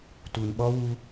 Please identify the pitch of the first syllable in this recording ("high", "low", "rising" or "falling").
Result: low